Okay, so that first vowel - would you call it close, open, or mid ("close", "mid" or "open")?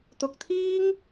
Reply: close